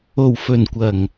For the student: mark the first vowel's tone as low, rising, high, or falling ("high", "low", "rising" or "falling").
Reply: low